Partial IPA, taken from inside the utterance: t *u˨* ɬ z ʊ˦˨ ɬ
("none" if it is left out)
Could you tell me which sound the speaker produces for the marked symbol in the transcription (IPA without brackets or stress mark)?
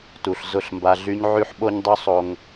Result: u˨